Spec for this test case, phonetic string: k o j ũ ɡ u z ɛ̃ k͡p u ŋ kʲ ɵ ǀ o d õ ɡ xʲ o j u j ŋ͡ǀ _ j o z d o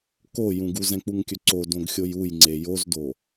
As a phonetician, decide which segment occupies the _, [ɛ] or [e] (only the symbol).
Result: e